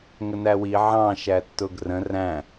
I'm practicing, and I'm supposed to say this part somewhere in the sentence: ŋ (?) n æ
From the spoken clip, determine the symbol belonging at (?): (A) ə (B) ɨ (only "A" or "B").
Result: A